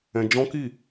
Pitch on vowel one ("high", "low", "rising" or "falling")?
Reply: high